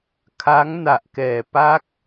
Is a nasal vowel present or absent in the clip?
absent